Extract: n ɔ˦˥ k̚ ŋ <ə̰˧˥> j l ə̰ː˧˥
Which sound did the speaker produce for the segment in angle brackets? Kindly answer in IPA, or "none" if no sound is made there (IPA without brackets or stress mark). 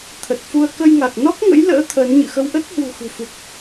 ə̰˧˥